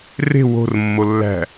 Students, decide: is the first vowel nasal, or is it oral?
oral